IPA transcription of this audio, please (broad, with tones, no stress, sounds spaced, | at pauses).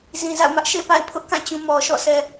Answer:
z ĩ˨ z a̰˦˨ ʊ̯ m ä˦ ʔ ʃ ḛ˦˨ p a̰˦˨ ɪ̯ pʰ ʊ˦ ʔ k ã˦˨ t͡ɕ ũ˨ m ɔ˨ ʃ ɔ̰˦˨ sʰ ɛ˨